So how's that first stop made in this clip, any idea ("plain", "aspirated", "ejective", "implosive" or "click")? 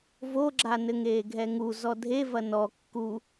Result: click